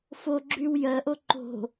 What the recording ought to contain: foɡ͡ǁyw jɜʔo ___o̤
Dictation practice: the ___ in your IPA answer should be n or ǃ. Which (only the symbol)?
ǃ